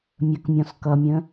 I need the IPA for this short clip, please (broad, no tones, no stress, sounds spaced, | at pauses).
mʲ ə k mʲ ɔ̃ s k ʌ mʲ ə̃